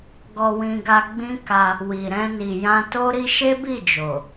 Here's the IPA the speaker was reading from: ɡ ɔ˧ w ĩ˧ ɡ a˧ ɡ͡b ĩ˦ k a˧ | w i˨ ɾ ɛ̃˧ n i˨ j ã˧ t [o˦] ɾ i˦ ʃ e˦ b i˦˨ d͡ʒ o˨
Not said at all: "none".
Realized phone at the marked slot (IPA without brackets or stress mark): o˦